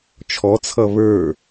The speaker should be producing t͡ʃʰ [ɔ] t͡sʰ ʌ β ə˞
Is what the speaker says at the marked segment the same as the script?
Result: yes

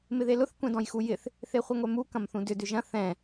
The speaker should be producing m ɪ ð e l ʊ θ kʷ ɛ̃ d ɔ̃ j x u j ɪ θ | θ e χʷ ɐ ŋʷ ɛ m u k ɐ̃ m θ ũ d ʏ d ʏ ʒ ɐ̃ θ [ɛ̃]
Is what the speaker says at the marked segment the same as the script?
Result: yes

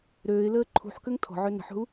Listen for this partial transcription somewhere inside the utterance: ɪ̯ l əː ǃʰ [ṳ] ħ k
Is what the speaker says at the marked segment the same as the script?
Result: yes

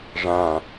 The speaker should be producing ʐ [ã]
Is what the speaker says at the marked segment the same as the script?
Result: yes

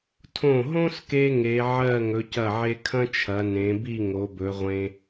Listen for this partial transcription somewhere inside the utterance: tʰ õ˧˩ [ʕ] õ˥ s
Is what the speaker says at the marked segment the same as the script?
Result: no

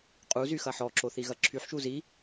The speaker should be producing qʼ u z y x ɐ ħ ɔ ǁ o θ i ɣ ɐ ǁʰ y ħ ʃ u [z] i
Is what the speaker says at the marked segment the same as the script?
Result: yes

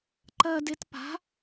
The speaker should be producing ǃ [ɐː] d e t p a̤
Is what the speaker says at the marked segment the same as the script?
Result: yes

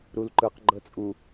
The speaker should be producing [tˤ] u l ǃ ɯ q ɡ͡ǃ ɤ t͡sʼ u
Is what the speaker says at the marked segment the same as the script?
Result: no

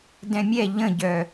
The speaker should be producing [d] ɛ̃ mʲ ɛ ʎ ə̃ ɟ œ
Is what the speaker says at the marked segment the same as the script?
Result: yes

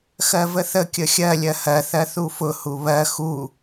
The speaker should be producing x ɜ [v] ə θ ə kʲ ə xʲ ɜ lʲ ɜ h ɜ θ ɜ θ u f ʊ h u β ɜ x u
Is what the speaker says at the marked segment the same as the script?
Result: yes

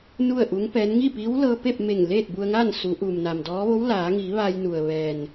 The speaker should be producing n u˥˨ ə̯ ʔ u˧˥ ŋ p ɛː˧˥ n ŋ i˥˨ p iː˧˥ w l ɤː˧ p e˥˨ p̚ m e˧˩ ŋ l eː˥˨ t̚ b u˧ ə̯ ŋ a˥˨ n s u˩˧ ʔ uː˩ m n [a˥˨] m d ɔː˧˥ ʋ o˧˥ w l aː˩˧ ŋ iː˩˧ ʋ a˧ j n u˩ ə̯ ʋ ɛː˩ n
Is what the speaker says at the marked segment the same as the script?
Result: no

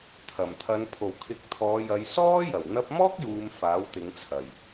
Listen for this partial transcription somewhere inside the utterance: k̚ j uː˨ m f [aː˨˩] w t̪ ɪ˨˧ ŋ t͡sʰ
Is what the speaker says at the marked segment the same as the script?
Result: no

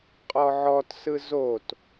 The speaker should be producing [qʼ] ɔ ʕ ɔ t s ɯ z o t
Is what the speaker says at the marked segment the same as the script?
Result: yes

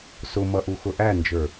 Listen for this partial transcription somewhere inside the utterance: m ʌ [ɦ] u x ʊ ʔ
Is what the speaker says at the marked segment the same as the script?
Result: no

